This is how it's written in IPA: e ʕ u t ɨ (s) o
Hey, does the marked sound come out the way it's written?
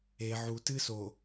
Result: yes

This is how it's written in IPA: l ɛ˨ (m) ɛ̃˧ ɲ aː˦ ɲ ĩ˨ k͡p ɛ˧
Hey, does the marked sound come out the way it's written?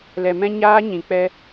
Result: yes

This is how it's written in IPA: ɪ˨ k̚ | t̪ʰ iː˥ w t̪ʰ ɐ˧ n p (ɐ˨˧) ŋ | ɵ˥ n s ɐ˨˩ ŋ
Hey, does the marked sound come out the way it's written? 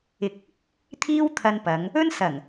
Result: yes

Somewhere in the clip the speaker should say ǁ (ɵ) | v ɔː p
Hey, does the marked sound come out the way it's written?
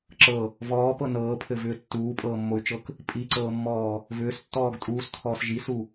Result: no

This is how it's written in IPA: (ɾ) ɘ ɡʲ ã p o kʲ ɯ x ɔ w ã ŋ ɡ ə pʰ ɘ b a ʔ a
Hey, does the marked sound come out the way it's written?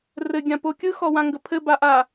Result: no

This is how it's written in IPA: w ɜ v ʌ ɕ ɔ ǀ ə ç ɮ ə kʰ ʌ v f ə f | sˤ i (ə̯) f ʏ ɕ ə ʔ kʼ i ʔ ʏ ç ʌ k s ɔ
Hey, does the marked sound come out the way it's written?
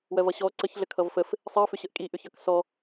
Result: yes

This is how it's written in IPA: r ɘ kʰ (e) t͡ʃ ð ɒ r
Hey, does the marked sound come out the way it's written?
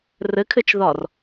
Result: no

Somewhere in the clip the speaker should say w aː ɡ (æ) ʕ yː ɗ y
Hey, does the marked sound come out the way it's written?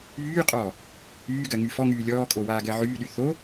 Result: no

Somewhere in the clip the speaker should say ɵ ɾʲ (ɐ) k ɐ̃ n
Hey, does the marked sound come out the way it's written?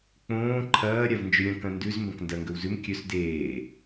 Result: no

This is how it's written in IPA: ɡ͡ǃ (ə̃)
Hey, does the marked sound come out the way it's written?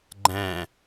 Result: no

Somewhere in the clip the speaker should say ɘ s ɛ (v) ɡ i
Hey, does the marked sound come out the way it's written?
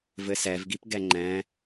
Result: yes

